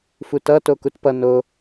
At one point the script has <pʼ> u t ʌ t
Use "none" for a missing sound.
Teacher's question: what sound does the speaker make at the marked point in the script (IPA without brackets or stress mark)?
f